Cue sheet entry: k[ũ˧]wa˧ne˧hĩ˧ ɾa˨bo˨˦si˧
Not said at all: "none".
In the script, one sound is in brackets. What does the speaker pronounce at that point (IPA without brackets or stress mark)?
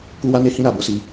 u˧